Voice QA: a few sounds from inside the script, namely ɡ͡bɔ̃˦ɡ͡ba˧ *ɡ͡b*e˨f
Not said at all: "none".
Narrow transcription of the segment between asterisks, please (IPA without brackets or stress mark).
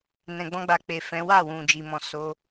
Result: k͡p